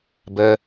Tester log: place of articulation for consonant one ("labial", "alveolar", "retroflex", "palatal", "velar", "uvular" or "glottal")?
labial